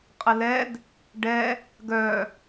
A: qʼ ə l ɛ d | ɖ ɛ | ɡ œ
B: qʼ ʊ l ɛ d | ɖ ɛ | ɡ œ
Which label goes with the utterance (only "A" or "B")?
A